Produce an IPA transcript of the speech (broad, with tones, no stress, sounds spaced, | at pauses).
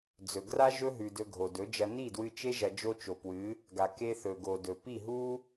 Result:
d͡z ɵ˨ ɡ r a˦ ʒ ɵ˦ ɦ ʉ˨ d ɵ˧ ɡʱ o˨ d ɵ˨˦ d͡ʒ ɐ˧ n i˦˨ d w ɨ˧ t͡ʃ e˦ ʒ ɐ˧ d͡ʒ o˦ t͡ʃ o˨ p w ɨ˨˦ | ɡ a˨ k e˧ θ ɵ˨ ɡ o˨ d ɵ˨ p i˦˨ ɦ u˦